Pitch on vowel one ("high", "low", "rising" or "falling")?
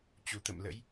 low